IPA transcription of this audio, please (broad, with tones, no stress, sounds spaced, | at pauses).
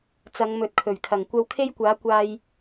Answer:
t͡s ɐ˨˧ ŋ m ɵ˨ t̚ kʰ ɵ˨˩ ɥ kʰ ɐ˨˩ ŋ kʷ ɐ˧ w kʰ e˥ j kʷ aː˨˥ kʷ aː˧ j